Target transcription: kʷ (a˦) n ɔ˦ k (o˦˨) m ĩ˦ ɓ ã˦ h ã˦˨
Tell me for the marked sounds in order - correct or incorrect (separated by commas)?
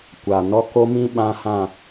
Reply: incorrect, incorrect